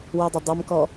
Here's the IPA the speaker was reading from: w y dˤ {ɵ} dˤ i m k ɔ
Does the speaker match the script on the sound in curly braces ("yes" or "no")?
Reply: yes